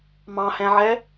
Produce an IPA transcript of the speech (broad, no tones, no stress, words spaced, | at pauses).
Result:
mɑ̃hɛ̃ʕɛ